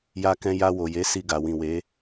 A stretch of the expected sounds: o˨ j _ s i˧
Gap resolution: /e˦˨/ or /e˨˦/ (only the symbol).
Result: e˨˦